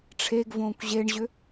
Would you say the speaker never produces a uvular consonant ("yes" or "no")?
yes